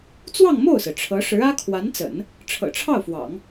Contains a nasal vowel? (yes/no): no